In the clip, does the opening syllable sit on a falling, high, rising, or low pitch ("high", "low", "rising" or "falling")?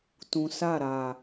low